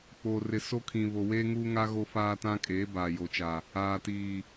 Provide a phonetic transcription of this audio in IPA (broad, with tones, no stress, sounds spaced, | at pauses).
k͡p oː˨ r ɪ˨ s o˦ kʰ ĩ˨ β o˨ w eː˦ ŋ uː˦ ŋ a˦ ɣ o˦ f aː˦ t ã˦ kʼ eː˨˦ b aː˨ j o˨ t͡ʃ a˨ | aː˨ t iː˨